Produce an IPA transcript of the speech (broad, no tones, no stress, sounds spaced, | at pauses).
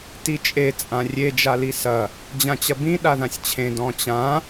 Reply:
t i t͡ʃʼ e t͡sʼ ã rʲ e d͡ʒ a l i s ɐ | d͡ʑ ã t͡ɕ ɐ b ĩ ɗ a ð ã sʲ t͡ɕʰ ẽ d ɔ̃ t͡ɕ ã